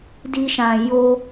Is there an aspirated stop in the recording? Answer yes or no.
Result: no